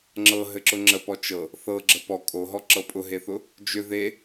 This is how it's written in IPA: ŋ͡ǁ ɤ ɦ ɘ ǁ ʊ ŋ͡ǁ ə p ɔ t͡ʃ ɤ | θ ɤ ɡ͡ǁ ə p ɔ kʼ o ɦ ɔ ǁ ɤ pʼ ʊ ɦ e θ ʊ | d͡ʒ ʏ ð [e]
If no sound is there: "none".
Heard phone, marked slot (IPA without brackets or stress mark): e